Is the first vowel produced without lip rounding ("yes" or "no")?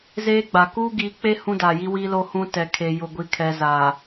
yes